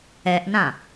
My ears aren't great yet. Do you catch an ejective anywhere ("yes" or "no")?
no